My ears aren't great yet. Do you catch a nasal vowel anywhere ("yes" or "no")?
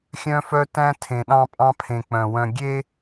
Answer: yes